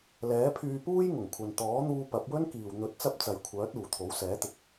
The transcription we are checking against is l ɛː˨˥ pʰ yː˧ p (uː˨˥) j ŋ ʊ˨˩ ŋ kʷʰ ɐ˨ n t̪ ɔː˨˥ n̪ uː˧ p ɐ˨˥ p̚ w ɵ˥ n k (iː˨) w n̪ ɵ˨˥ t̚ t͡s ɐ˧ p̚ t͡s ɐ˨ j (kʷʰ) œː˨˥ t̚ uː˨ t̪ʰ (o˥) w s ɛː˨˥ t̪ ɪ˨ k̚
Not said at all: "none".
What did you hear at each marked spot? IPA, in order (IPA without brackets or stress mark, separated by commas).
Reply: uː˥, iː˨, kʷʰ, o˨˥